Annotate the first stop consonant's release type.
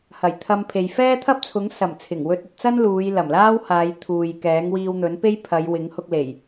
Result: aspirated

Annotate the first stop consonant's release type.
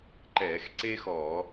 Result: click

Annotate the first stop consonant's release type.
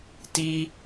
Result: plain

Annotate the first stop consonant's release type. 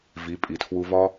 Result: ejective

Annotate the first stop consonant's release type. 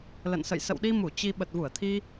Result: implosive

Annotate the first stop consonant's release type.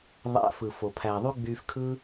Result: aspirated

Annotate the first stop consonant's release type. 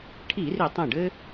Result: aspirated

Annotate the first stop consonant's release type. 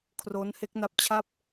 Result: aspirated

